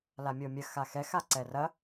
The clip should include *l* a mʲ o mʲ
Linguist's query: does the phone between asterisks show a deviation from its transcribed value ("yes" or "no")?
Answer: no